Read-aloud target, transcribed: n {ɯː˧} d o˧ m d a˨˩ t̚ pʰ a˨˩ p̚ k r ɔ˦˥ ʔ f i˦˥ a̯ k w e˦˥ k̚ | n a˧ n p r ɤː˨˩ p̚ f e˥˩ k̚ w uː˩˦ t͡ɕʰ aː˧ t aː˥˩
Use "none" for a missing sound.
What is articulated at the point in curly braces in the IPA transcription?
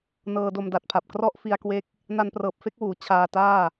ɤː˧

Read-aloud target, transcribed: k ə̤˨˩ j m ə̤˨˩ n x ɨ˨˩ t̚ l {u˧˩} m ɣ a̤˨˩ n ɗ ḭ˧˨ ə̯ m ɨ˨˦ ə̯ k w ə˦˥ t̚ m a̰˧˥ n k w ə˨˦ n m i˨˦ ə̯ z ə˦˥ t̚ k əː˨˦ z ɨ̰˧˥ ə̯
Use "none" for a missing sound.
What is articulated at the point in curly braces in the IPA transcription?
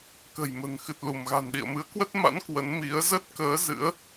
u˧˩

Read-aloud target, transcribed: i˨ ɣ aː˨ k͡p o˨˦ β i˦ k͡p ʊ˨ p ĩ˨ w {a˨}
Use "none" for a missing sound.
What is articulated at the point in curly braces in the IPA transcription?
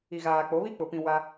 a˦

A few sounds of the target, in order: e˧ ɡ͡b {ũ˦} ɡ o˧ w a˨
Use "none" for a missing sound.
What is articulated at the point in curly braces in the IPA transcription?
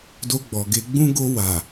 ũ˦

